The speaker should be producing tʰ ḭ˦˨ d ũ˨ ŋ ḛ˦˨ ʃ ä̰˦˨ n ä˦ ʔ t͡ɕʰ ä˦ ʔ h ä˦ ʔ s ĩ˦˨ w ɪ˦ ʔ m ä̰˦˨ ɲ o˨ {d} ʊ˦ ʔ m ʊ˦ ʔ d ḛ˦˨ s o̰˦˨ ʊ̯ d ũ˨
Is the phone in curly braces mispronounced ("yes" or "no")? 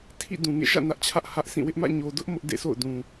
no